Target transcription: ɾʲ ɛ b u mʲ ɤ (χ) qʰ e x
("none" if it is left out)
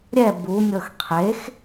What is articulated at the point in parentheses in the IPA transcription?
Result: x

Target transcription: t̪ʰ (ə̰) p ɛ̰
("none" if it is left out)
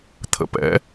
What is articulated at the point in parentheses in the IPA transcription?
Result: ə̰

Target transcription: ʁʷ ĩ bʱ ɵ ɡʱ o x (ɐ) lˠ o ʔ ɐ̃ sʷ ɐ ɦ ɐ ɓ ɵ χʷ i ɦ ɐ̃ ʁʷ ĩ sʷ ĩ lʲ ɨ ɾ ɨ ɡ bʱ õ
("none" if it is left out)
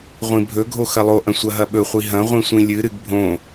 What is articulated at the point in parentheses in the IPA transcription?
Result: ɐ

